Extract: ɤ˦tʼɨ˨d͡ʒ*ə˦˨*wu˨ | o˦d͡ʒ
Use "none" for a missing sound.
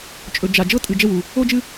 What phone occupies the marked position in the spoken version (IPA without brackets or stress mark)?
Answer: ə˦˨